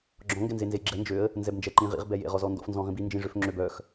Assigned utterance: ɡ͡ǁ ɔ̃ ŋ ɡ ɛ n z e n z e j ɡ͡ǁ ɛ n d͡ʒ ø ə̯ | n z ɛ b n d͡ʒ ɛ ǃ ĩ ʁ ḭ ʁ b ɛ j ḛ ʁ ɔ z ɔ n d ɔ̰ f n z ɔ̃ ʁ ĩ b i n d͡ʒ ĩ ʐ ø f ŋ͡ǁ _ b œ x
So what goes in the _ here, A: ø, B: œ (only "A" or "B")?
A